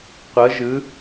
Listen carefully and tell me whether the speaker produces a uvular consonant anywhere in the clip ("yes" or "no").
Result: yes